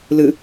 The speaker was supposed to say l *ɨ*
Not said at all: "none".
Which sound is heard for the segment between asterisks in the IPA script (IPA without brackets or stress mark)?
ɨ